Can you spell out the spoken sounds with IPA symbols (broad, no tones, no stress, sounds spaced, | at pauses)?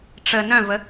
ʈ͡ʂ ə n œ̃ v ə